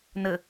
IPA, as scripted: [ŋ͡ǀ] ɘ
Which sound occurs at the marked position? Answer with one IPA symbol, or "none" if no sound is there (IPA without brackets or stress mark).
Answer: n